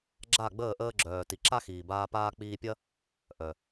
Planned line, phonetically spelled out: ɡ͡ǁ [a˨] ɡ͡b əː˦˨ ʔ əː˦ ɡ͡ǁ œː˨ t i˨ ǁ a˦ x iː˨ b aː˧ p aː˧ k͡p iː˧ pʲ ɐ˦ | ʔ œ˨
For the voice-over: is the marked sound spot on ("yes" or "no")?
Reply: no